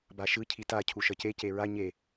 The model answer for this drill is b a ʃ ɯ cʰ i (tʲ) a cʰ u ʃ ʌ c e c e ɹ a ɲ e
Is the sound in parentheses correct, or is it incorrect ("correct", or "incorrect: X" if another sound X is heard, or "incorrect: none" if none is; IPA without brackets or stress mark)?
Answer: incorrect: t